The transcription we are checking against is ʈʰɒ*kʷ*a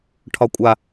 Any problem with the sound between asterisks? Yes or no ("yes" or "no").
yes